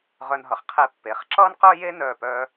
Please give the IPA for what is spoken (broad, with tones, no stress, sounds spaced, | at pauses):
ʁ œ˧ n ɦ ʌ˩˧ χ qʰ e˧ pː e˩˧ χ ǁ ʌː˥ n q œ˥ j e˥ n œː˧˩ p œː˧